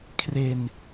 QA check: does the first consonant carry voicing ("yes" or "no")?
no